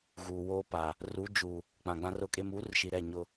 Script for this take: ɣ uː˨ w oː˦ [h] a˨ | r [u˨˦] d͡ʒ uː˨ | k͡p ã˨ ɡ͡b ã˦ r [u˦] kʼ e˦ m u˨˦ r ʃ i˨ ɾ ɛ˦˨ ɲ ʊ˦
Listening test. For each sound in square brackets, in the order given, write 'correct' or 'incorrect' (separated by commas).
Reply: incorrect, correct, incorrect